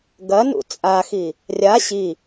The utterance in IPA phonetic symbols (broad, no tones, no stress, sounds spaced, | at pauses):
ɡ ɐ n ṵ t͡sʼ a x i | rʲ a ɕ i